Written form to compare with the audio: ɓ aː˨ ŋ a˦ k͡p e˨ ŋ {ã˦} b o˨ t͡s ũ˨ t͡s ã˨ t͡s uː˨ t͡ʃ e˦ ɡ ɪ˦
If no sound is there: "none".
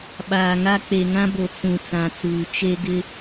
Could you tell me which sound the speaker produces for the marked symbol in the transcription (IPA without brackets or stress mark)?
ã˦